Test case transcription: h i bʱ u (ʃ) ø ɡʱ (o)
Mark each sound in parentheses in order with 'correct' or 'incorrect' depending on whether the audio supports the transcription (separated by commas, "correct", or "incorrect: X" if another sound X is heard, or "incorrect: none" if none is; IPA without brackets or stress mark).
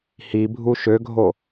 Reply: correct, correct